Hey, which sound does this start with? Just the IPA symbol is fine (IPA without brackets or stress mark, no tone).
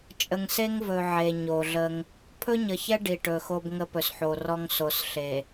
t͡ʃʼ